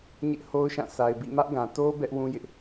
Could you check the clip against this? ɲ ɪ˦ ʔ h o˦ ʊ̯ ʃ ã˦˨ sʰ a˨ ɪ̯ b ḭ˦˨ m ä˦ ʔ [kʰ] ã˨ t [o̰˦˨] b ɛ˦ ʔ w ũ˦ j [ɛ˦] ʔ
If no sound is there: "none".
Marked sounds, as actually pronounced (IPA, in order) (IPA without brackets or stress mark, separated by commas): ɡ, o˦, ɪ˦